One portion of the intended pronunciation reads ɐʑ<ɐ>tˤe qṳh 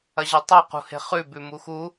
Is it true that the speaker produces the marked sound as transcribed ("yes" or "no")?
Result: yes